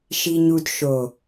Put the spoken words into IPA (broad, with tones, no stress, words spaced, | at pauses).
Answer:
ʃi˨ɲu˨d ʃo˨